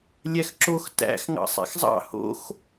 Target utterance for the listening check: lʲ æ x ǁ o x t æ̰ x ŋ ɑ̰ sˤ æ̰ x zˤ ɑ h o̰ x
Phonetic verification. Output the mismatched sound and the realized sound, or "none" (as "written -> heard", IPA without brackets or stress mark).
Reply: ɑ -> ɑ̰